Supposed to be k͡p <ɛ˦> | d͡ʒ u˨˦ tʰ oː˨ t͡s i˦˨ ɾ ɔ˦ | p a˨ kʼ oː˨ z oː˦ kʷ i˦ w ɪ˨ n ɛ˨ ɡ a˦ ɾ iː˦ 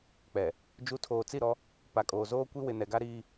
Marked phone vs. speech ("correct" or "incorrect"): incorrect